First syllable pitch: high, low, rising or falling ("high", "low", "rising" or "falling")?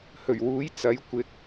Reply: low